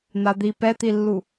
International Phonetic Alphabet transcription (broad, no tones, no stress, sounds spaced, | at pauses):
n̪ a d̪ i p ɛ t̪ i lː u